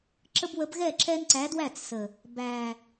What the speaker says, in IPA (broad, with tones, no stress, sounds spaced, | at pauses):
ǁ ə˦ b w ə˨˥ b ɣ ɛ˥˩ ǁ ɛ˦ n ǀ æ˨˥ d w æ˥˩ t͡s s ə˨˩ | b æ˨˩